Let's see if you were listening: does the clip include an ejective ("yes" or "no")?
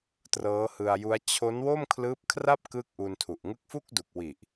no